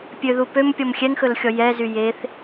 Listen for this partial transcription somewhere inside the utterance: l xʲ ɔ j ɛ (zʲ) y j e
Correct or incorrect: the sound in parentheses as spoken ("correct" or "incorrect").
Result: incorrect